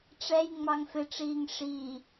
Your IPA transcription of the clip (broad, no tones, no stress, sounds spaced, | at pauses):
ʈ͡ʂ ɛ j ŋ͡m ɑ ŋ f ɪ ʈ͡ʂ iː ŋ ʂ i